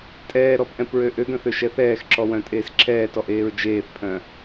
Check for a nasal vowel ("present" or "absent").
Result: present